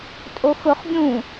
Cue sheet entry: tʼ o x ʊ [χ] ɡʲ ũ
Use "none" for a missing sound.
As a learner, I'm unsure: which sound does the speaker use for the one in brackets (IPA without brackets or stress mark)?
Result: χ